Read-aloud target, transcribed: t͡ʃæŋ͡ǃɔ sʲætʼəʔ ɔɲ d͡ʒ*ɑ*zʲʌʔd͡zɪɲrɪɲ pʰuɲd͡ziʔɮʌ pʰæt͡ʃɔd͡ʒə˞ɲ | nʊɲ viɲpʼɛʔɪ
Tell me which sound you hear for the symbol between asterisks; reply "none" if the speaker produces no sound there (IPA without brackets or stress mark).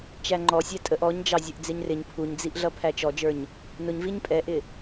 ɑ